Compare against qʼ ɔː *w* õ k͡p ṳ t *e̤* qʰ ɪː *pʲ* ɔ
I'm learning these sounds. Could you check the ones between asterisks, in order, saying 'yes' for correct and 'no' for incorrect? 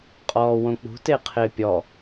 yes, no, yes

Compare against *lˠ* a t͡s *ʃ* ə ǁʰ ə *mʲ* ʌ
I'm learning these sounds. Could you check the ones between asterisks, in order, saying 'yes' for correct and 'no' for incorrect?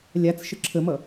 no, yes, no

